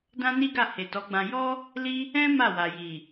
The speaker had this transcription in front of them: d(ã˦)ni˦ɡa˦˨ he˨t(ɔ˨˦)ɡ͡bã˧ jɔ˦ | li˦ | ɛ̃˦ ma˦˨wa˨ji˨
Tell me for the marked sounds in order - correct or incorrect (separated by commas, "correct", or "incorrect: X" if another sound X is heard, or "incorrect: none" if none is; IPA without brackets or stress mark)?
correct, correct